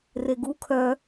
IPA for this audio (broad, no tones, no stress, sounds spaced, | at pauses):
r e ɡ u kʰ œ